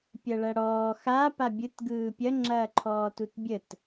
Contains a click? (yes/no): yes